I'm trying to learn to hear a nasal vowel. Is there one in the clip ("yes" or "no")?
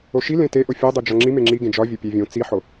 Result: yes